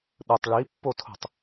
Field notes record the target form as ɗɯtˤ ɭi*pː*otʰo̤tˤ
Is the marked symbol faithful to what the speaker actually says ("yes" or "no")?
yes